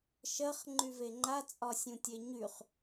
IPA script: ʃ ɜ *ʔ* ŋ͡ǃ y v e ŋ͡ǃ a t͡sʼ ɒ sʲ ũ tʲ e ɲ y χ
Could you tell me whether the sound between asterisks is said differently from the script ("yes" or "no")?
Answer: yes